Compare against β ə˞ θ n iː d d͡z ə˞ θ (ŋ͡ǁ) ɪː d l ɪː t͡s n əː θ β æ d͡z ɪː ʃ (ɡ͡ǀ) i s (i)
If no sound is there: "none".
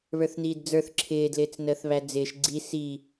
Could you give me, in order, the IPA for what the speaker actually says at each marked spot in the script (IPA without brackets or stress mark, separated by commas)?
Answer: ǁʰ, ɡ͡ǀ, i